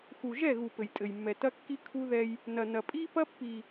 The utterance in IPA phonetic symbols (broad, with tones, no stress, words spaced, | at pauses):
xu˨ʒɛ˦˨ɣu˨ pɘ˨jtʼɘ˨jmːɛ˨tɐ˦ kːi˦ kʰu˦ðɛ˦j | nɐ˨nɐ˨ pʼi˦pɐ˦ pːi˨